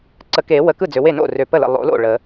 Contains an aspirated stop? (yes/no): no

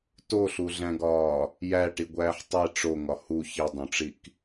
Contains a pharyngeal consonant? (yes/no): yes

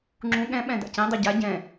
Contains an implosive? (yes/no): yes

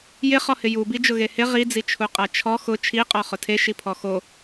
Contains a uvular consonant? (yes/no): yes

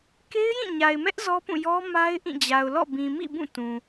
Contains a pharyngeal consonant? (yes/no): no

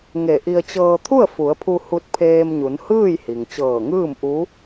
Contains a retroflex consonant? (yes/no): no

